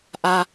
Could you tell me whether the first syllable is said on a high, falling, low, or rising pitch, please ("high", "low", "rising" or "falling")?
low